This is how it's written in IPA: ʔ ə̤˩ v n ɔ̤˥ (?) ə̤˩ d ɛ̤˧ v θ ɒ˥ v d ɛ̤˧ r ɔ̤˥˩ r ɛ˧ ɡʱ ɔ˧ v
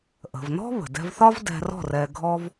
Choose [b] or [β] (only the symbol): β